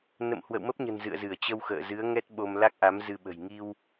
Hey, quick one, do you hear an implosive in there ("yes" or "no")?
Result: yes